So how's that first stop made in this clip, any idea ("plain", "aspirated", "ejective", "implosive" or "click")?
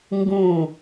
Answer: plain